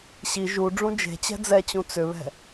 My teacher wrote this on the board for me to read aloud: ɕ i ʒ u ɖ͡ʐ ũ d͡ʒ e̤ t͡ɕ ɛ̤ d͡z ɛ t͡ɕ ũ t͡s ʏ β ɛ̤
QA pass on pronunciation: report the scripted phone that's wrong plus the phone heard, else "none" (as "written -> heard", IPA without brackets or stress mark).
none